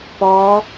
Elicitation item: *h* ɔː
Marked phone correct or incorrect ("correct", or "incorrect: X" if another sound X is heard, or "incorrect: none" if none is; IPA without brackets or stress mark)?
incorrect: p